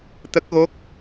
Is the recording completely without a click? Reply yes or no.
yes